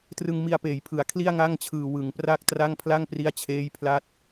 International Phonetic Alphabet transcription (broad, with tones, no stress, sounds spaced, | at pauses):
t r ɯ˧ ŋ m i˧ a̯ p eː˩˦ j pʰ ɯ˩˦ a̯ kʰ l i˥˩ a̯ ŋ a˥˩ ŋ t͡ɕʰ ɯː˨˩ w ɯ˩˦ ŋ p r a˥˩ k̚ t r a˥˩ ŋ pʰ l a˥˩ ŋ p r i˦˥ a̯ t͡ɕʰ eː˦˥ j pʰ l a˦˥ t̚